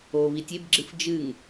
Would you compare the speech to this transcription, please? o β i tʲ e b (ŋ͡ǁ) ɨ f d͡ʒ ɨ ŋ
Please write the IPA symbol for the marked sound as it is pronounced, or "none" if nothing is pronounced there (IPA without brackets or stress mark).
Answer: ɡ͡ǁ